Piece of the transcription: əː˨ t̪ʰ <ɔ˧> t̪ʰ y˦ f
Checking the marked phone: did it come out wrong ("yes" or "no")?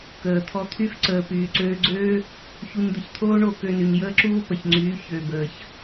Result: no